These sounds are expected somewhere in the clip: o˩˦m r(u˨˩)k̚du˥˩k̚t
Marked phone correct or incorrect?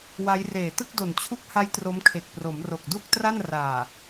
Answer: incorrect